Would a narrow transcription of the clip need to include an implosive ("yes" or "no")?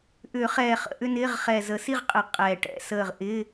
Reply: no